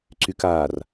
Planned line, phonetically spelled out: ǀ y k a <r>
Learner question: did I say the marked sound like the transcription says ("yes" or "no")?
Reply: yes